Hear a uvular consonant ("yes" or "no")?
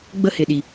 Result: no